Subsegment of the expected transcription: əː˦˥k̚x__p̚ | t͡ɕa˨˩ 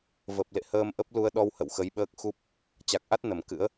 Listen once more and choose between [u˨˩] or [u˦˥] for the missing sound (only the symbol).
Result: u˦˥